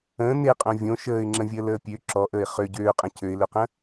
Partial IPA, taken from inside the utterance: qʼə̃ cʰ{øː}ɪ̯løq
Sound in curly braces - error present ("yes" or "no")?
yes